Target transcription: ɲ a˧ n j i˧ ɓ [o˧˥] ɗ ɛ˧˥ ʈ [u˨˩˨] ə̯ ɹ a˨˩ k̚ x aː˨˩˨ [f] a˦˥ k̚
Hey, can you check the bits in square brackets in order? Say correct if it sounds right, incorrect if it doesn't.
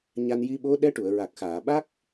correct, correct, incorrect: ɓ

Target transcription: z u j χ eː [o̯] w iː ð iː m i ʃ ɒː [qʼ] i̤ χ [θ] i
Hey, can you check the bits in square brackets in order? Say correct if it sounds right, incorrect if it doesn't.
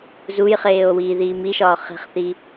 correct, incorrect: χ, correct

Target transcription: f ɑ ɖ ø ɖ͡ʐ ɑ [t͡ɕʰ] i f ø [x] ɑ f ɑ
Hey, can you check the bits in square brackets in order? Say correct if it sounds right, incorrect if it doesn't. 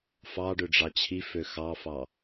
correct, correct

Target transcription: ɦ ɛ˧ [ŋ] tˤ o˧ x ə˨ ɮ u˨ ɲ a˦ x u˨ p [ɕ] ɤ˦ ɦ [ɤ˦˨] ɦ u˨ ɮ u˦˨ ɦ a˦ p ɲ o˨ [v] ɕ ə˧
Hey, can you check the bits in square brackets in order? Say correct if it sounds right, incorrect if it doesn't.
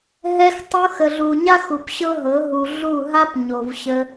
incorrect: x, correct, incorrect: ɤ˨˦, correct

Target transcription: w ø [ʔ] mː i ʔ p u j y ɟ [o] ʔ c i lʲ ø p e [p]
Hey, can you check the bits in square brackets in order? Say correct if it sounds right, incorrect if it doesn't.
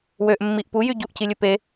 correct, incorrect: u, incorrect: none

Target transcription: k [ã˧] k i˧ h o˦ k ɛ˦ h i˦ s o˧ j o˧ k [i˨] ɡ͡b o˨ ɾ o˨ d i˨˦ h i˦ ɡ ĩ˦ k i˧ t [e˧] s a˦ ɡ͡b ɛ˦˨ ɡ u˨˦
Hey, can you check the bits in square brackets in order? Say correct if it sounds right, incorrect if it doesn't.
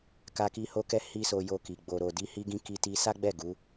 incorrect: a˧, correct, incorrect: i˧

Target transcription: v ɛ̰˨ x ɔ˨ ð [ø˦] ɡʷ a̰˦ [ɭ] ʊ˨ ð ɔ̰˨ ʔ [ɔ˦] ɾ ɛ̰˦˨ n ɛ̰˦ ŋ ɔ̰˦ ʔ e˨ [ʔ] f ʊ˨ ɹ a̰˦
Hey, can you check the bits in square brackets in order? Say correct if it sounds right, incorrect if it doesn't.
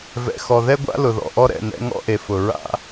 incorrect: ɛ˦, incorrect: l, correct, incorrect: none

